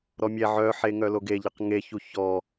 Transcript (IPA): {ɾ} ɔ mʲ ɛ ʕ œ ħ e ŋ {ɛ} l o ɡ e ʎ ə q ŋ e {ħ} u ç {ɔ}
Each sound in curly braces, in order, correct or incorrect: correct, incorrect: œ, incorrect: ç, correct

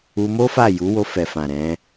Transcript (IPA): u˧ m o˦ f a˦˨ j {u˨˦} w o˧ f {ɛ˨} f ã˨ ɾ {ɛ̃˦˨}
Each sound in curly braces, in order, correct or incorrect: correct, correct, incorrect: ɛ̃˨˦

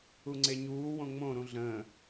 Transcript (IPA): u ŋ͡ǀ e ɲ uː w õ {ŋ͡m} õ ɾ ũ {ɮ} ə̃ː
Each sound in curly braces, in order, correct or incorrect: correct, correct

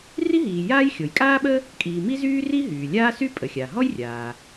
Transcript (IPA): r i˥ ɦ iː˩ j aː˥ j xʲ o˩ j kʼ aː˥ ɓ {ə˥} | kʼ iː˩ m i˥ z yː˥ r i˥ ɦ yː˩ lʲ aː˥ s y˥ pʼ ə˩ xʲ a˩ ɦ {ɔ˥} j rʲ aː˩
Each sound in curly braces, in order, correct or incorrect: correct, correct

